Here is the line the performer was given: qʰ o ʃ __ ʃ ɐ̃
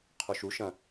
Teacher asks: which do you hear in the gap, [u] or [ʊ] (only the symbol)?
u